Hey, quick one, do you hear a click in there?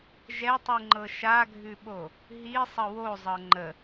yes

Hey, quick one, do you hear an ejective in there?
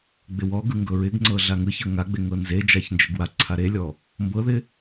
no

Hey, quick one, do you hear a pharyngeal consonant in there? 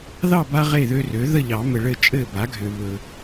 no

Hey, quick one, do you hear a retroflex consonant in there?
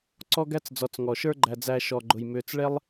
yes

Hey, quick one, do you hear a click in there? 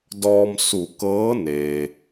no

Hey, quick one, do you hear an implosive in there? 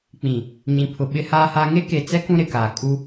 yes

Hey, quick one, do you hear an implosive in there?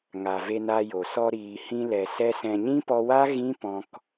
no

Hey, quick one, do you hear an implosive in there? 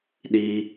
yes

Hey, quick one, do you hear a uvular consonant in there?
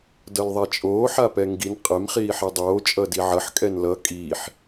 yes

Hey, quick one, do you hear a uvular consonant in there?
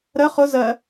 yes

